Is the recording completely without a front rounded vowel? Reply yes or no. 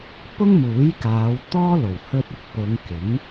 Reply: yes